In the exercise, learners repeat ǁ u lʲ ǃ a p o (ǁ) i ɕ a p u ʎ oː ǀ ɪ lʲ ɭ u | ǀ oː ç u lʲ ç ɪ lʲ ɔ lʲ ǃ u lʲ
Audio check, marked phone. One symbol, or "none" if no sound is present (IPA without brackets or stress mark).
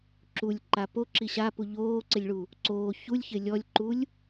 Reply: ǁ